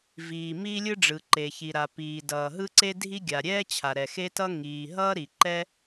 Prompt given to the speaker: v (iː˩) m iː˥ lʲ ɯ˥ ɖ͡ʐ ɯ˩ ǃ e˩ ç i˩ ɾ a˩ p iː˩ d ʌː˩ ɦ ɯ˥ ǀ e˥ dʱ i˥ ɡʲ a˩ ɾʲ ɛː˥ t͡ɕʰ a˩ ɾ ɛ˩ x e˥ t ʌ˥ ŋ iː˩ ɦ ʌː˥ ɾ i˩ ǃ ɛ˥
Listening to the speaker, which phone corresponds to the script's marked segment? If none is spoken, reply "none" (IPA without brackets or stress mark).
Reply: iː˩